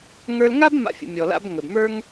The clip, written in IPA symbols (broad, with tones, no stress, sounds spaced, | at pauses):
ŋ ə˞˧ l ŋ a˥ b m a̰˧ fʲ ə̰˩ mʲ ɔ˩ l a̰˥ b ŋ ɵ˩ b m ə˞˥ ŋ